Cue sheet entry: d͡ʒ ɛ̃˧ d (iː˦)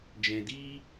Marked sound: correct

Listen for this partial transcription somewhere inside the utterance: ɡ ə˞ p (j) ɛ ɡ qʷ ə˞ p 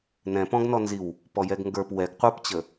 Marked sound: incorrect: w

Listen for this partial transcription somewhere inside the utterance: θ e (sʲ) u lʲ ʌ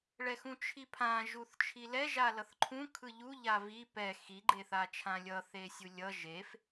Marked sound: correct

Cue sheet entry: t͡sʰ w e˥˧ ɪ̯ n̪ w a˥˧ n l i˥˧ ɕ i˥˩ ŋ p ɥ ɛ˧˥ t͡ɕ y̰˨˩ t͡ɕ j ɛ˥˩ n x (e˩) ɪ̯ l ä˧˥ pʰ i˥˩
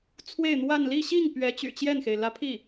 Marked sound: correct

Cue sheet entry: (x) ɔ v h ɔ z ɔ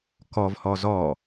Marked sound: incorrect: k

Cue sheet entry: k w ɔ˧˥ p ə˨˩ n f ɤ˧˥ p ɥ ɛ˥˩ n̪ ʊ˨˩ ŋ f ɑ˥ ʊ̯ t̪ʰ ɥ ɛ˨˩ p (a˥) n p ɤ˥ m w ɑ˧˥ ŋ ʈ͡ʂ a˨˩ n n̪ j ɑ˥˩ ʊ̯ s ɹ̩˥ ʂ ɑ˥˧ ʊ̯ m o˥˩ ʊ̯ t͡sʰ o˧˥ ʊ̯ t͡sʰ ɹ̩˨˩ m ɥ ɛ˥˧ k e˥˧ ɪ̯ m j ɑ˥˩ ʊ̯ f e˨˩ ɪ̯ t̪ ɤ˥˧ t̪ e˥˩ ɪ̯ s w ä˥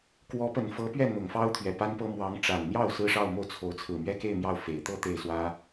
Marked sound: correct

